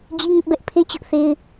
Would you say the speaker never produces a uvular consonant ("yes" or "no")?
yes